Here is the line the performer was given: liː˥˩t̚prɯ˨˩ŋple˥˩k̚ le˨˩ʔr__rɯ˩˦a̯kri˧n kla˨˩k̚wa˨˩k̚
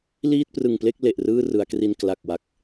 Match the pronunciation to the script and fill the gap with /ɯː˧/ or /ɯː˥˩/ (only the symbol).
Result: ɯː˥˩